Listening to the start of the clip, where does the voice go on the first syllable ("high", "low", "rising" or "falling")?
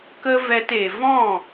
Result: high